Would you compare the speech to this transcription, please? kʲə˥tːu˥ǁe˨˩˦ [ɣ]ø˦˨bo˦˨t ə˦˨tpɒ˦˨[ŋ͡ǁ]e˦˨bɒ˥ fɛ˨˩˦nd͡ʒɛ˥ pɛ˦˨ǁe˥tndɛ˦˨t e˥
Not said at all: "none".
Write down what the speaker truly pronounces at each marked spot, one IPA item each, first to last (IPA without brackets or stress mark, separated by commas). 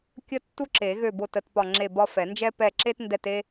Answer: ɣ, ŋ͡ǁ